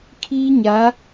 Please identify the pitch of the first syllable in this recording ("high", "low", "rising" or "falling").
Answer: high